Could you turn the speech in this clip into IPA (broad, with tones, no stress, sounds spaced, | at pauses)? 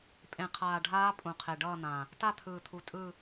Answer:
pʼ ẽ˨˩ qʰ aː˨˩ ɖʱ aː˦˥ pʼ ũ˨˩ qʰ e˨˩ ɖ ʌː˥˧ n̪ ã˨˩ | t a˥˧ t̪ʰ ɯː˨˩ t̪ʰ u˨˩ tʼ ɯ˥˧